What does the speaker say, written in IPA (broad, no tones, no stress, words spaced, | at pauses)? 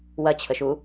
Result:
wɐt͡ɕʰəʃu